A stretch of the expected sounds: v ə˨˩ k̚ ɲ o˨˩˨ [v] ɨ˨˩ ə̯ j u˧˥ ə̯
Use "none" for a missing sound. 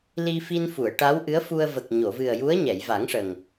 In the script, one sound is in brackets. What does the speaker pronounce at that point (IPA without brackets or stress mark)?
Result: v